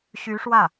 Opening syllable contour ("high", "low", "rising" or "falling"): rising